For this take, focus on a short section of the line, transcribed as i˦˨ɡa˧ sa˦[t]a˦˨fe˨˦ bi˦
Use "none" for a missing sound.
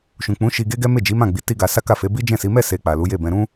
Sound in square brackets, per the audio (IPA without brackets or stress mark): k